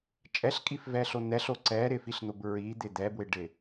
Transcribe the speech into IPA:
t͡ʃʼ ɛ ɬ kʼ i f v ɛ ɬ o n̪ ɛ ɬ o ǀ ɛ ɾ ɪ f i ɬ n̪ o b ɹ i d̪ ɪ d̪ ɛ b w ɪ ɖ ɪ

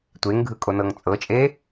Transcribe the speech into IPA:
tʷ e ŋ ɡʱ ɯ kʼ o n ɤ ŋ t͡sʼ ɤ t͡ʃʼ e

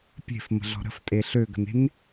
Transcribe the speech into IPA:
pʲ e̤ f m ə̤ ɮ ɔ̤ ɾ ə̤ f tʼ e ɬ ø ɡ ə̤ n e̤ n

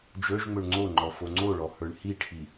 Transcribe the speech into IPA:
d͡ʒ ə˞ ʒ ŋ͡m ɵ ɳ ŋ͡ǀ o ŋ͡ǃ ɔ f o ŋ͡ǀ o ɭ ɔ h ə˞ ɳ h i ʈʰ i

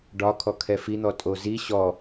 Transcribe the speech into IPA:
ɖ ɒ kʰ ɔ kʰ ɛ f i n̪ ɔ tʼ o z i ɕ ɔ

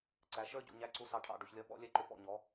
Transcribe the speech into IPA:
ǀ æ˨˦ ʃ ə˞˦ ɟ ṵ˨ ɲ æ˧ ǀ u˧ s ɑ˧ ʈʰ ɑ̰˦˨ ɖ u˨ ç lʲ ʌ˦ ɓ ɔ̰˦ lʲ ɛ˦ ǃ ʊ˧ p ɔ̰˦˨ ɲ ɔ˨˦

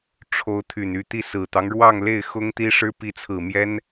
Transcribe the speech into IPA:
ʈ͡ʂʰ o˧˥ ʊ̯ t̪ʰ y˨˩ n y˥˧ t̪ i˥˩ s ɹ̩˨˩ t̪ ɑ˦ ŋ ɻ w ɑ˥˧ ŋ l e˥˩ ɪ̯ x ʊ˥ ŋ t̪ i˥ ʂ ɻ̩˥ p i˧˥ t͡sʰ ɹ̩˨˩ m j ɛ˥ n

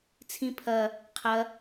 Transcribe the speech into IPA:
t͡sʰ ĩ pʰ ɐ | qʰ ɐ

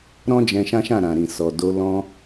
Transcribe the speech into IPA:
ɾ ɔ̃˦ d͡ʒ ɛ̃˧ ʃ ã˦ ʃ ã˦˨ ɾ ã˨ ɾ ĩ˨ s ɔ˨ d o˧ l ɔ̃˧

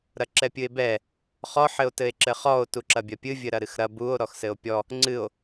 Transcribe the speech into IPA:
ɾ ɐ ǁ ɛ pʲ ɨ e̯ b ɛ | χ ɔ ħ ɘ o̯ t ɘ e̯ ǁ ɘ χ ɔ o̯ t u ǁ ɐ bʲ ɐ pʲ ɨ vʲ ɘ ɾ ɐ ɾ ɨ x ɾ ɐ b u o̯ ɾ ɔ x s ɘ o̯ pʲ ɔ | ŋ͡ǀ ɨ o̯

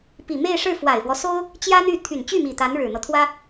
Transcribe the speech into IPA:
p i˨˩ m e˥˧ ɪ̯ ʂ ɻ̩˥˩ f w a˨˩ ɪ̯ f w ɔ˦ s o˥ ʊ̯ | t͡ɕ j ä˥ n̪ y˥˩ t̪ʰ y˨˩ n t͡ɕ y˥˩ m i˨˩ t̪ a˧˥ n ɻ ɻ̩˨˩ n̪ ɤ˦ t̪ʰ w ä˥

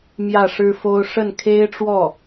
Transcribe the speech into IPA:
m j ä˥˩ ʂ ɻ̩˥ f o˥ ʊ̯ ʂ ə˥˩ n kʰ e˥ ɪ̯ ʈ͡ʂ w ɔ˥˩

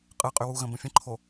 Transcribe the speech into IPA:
qʼ ɯ qʼ y w u ɣ ə̃ b ə̃ fʲ ə̃ ǃʰ o

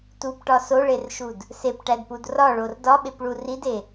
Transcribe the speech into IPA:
t u p ʈ ɒ s o ɭ e r ʃ u d | s e p ʈ æ d p u d r ɒ ɭ o r d ɒ ɓ e p ɭ u r i d e

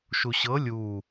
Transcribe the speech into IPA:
ʃ u ɕ ɤ lʲ u

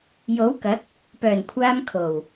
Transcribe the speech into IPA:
j o˨˥ w k ɐ˨˥ k̚ | p œː˨˩ n kʷʰ aː˧ m kʰ o˨˩ w

